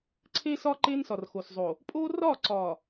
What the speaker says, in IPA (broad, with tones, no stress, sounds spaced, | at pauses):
ǀʰ e˦ s ɒ˦ ǃ e˦ n s ɒ˨ r x o˨ s zˤ o˨ | pʼ o˦ r ɒ˦˨ ǀ ɒ˨